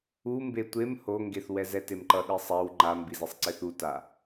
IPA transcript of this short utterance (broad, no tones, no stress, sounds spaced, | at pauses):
u m b e tʷ e m h o ŋ ɡ e θ w ɛ z ɛ t e m ǃ ʌ ɗ i sˤ ɛ w ŋ͡ǃ a m b i z i sˤ ǀ e θ u t a